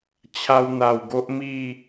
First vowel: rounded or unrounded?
unrounded